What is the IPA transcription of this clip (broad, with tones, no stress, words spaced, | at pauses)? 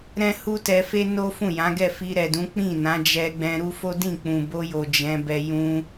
ɾɛ̃˦hu˦tɛ˧fe˦ no˦fũ˦˨jã˨˦ ɡɛ˦˨fi˧ɾɛ˨dũ˨˦ k͡pĩ˦˨nã˨˦d͡ʒɛ˧ ɡ͡bɛ̃˧ɾu˦fo˦ dĩ˦˨ k͡pũ˨bo˧jo˨ d͡ʒɛ̃˨˦bɛ˧ jũ˧